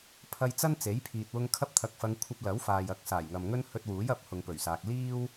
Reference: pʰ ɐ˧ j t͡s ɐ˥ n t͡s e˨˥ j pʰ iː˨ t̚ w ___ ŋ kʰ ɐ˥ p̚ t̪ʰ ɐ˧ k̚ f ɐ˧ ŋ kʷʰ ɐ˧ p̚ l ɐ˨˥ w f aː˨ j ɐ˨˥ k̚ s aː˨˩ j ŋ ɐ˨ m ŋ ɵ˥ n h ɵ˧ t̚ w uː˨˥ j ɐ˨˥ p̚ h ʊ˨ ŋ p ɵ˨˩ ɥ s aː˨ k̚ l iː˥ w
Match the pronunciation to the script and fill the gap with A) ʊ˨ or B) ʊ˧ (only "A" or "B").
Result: B